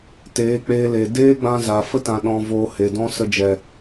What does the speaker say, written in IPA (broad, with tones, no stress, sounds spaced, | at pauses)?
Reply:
t eː˨˦ k͡p eː˧ l e˨ d eː˦ ɡ͡b ã˧ z a˨ f ə˦ t ã˨ ɗ ɔ̃˨ v oː˧ h e˨ d ɔ̃˦ s ə˧ d͡ʒ ɛ˨